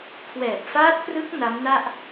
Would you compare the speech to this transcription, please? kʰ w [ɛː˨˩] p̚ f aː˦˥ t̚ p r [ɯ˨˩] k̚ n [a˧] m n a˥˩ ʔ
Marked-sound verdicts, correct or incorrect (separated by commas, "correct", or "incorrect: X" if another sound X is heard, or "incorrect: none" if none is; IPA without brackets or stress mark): correct, incorrect: ɯ˦˥, incorrect: a˦˥